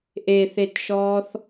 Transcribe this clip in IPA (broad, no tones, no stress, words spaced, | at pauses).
ʔeθetʃɔːθ